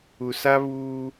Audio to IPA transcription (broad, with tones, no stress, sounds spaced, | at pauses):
u˨ s a˦ β uː˦